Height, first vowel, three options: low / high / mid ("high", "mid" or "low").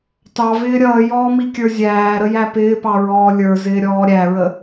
low